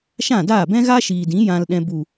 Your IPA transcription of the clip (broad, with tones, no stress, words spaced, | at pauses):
ʃã˦˨daː˦˨bɛ̃˦ɣa˦ ʃiː˨dĩ˨˦ jã˧lɗɛ̃˧ bu˨